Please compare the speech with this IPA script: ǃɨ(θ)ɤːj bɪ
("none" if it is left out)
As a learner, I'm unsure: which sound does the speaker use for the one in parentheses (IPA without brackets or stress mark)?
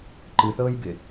θ